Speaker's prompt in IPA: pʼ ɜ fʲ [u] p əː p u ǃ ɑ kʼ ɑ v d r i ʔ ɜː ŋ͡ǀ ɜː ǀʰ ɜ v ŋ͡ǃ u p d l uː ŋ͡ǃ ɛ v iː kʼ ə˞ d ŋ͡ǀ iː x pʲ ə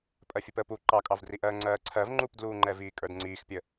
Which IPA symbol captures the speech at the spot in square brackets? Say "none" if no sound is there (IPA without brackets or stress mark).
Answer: u